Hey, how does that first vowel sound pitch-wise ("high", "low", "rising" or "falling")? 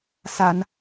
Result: low